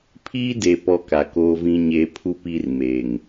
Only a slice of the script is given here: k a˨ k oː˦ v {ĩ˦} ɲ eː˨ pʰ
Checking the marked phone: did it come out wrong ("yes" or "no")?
no